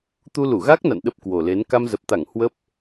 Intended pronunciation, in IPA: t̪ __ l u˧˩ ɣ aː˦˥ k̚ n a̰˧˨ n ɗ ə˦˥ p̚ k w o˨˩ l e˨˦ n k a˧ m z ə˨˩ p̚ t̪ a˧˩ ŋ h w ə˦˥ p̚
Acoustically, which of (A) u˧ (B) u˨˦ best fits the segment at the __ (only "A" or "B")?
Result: A